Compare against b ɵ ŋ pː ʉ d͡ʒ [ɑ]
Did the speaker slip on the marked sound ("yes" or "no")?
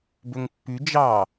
no